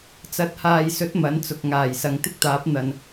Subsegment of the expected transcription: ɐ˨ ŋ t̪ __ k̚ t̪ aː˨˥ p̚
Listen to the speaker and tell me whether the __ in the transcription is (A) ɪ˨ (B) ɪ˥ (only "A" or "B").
B